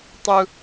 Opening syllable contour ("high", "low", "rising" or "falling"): high